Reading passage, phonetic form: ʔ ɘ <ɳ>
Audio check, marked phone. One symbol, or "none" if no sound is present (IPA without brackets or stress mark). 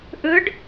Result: ɖ